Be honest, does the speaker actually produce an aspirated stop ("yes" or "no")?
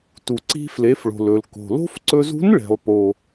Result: no